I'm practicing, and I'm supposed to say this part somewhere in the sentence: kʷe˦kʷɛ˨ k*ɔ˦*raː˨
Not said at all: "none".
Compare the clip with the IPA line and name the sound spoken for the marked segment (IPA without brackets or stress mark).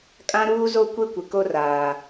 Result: o˦